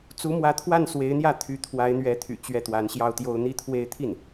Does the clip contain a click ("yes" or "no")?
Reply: no